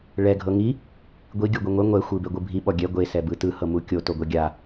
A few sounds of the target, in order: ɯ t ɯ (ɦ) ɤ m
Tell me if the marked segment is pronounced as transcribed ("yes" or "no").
no